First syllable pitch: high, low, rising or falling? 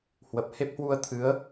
low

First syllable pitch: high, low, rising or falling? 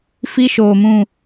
high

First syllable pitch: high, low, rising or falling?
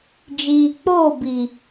low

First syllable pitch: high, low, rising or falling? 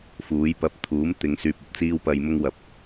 rising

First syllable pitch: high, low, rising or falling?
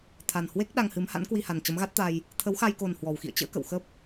low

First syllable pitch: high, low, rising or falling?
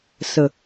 low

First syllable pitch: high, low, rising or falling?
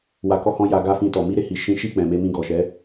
low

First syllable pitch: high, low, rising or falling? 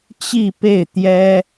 falling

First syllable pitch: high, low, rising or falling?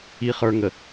low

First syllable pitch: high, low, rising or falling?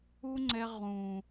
high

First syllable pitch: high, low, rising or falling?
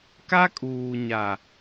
high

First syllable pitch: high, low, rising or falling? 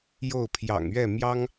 falling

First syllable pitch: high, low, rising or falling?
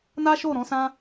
high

